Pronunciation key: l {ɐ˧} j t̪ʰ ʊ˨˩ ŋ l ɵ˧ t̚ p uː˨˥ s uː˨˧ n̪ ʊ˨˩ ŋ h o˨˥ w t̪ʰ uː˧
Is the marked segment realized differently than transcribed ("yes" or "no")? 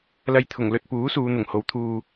no